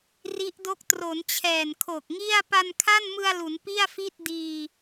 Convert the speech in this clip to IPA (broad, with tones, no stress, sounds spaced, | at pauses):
r i˦˥ ʔ d o˦˥ k̚ t r o˩˦ n t͡ɕʰ ɛː˨˩ n kʰ o˨˩ k̚ ŋ i˥˩ a̯ p a˧ n kʰ a˥˩ n m ɯ˧ a̯ l u˩˦ n p i˥˩ a̯ f i˥˩ t̚ d iː˧